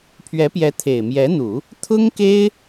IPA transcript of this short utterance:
pʰ ɥ ɛ˧˥ p j ɛ˧˥ t̪ʰ e˨˩ ɪ̯ m j ɛ˧˥ n̪ u˨˩˦ | t̪ʰ ʊ˥ ŋ k e˥ ɪ̯

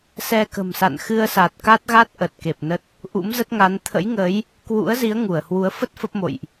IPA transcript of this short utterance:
s ɛ˧ k ə̤˨˩ m s a̰˧˨ n x ɨ˧ ə̯ s a˨˩ t̚ k a˦˥ t̚ ɣ a˦˥ t̚ ʔ ə˨˩ t̚ k e˨˩ p̚ n ə˦˥ t̚ | ʔ ṵ˧˥ m z ə˦˥ t̚ ŋ a˨˦ n t̪ʰ ə̰˧˥ j ŋ ə˨˦ j | k w ṵ˧˥ ə̯ z i˨˦ ə̯ ŋ u˧˩ ə̯ h w u˨˦ ə̯ f ə˦˥ t̚ f ə˦˥ p̚ m o̰˧˨ j ʔ

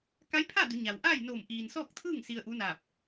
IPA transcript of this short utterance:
k a˧˥ j pʰ a˥˨ d u˩˧ ɲ a˩ w ʔ aː˥˨ j n o˧˩ m ʔ iː˩ n s ɔː˥˨ k̚ t̪ʰ ɯː˥˨ ŋ s i˧ ə̯ ʔ u˧˥ n aː˧˩ p̚

